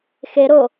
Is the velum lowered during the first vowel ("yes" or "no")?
no